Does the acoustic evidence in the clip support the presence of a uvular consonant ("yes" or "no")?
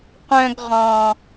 yes